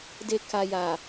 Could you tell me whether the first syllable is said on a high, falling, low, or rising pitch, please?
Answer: low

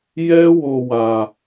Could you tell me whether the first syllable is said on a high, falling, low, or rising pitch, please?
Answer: high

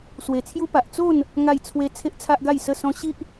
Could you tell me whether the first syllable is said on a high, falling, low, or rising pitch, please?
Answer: low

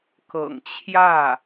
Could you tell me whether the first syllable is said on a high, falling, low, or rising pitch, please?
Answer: low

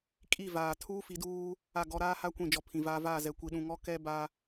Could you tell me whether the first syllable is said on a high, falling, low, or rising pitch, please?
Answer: falling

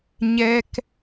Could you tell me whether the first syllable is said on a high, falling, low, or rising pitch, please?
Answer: high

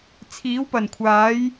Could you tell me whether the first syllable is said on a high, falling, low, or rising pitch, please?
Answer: rising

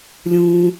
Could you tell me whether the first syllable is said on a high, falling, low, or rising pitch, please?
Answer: low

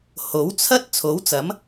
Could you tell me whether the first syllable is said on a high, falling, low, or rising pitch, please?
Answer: rising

